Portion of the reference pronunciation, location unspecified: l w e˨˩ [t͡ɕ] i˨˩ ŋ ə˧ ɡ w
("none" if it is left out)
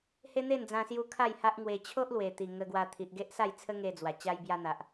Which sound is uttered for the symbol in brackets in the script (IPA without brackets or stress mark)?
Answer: t̪